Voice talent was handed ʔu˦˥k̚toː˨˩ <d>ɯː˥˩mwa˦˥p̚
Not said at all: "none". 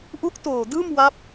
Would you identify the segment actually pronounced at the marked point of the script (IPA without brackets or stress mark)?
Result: d